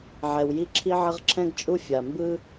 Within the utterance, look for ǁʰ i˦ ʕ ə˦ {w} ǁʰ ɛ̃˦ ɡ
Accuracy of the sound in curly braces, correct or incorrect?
incorrect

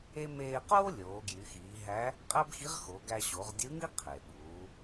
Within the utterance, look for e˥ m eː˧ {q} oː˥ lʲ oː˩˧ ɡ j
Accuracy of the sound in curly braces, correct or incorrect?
correct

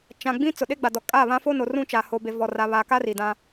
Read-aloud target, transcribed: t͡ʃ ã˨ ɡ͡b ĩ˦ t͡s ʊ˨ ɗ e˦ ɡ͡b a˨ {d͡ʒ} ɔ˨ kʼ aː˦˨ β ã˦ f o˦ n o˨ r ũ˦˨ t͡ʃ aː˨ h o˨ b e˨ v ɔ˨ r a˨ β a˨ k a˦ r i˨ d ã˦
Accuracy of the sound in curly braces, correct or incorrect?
incorrect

